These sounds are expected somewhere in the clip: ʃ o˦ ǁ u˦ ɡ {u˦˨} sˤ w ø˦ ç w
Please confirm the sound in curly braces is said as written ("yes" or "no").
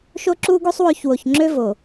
no